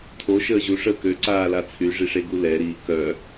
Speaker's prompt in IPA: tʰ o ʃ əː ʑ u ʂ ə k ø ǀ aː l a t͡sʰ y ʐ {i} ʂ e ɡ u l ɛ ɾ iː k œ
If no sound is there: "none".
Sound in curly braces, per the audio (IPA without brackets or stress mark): i